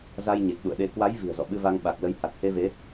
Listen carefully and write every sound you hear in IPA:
za˧jɲe˨˩k̚ɗṵ˧˨ə̯ ɗe˨˦ kwa˨˦j vi̤˨˩ə̯zɔ̰˧˨ɓɨ˧va˧ŋ ɓa˨˩k̚lə˨˦jha˨˩t̚ he˧ve˨˦

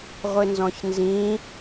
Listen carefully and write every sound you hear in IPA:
ʁʷɪnzɔ̃çnzĩ

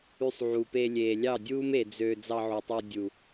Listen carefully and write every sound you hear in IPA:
y˧sˤʕu˨peː˧ lʲeː˨ lʲɑ˦˨dʲuː˦me˨ d͡zø˧ d͡zɑ˧ʕu˨tˤo˧ dʲu˨

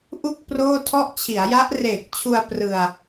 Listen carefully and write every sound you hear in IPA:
ʔu˥˩k̚ proː˥˩tʰɔ˥˩ʔ t͡ɕʰi˩˦a̯ja˦˥ʔ reː˨˩k̚t͡ɕʰu˧a̯ prɯ˧a̯

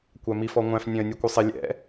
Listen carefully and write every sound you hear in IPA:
kʷæmifɔŋʷæ̃f nʲɛ̃ə̯nʲukʷɪsˤɪ lʲɛ̰

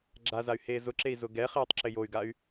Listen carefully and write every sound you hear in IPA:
ɡ͡ǁazay̯ heːzʊǁei̯ zʊɡɛχeːtˤ ǁɪjoy̯ɡay̯

